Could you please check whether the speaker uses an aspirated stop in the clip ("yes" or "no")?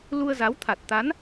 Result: yes